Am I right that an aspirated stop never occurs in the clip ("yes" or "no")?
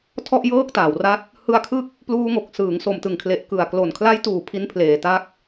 no